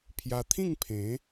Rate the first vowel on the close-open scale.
open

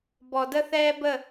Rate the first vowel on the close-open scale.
mid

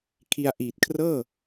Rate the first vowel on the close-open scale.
close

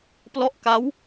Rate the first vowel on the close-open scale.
mid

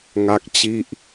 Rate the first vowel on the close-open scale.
open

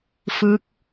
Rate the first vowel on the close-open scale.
close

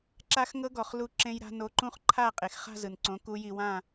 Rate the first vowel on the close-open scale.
open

